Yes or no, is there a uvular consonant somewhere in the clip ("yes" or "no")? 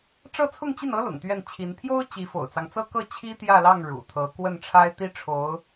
no